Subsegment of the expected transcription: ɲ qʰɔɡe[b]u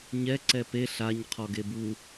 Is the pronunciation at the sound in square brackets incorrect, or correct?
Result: correct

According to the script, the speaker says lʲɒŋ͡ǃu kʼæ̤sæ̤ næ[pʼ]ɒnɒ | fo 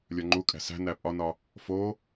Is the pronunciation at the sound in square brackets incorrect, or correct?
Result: correct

